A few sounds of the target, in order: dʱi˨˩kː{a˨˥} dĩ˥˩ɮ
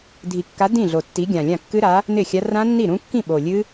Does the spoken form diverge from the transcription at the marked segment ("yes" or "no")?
no